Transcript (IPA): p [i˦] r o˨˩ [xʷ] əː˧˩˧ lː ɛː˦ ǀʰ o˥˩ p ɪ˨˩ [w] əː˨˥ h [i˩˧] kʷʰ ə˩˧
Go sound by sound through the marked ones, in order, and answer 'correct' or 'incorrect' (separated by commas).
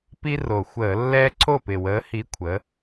correct, correct, correct, incorrect